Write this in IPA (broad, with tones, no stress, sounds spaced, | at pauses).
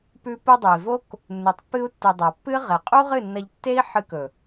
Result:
p ʉ˧ p u˧ dˤ ʉ˨ i̯ v o˦ k | nː u˨ tˤ pː ɨ˧ u̯ tː u˨ dˤ ɐ˨ pː ɨ˦ ʁ e˨ qʼ u˦ ʁ ɨ˦˨ nː ɐ˧ ʎ tː e˦ i̯ ħ ɨ˧ k ɵ˨